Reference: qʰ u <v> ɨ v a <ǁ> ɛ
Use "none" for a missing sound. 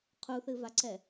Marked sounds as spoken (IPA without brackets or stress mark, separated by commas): θ, ǀ